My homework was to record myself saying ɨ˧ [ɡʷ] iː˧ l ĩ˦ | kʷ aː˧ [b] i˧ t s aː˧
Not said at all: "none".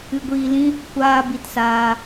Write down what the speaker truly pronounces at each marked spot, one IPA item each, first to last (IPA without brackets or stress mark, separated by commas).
ɡʷ, b